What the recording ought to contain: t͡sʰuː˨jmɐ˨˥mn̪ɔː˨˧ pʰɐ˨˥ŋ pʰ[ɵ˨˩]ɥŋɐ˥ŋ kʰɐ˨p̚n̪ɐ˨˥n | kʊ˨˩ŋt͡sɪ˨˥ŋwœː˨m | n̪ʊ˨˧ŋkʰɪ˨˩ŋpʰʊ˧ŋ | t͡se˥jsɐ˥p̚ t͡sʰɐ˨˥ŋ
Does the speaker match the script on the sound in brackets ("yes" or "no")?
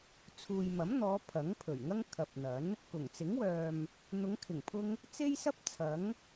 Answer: yes